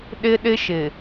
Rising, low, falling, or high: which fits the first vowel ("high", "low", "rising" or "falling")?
high